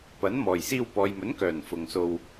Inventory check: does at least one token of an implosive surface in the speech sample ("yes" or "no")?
no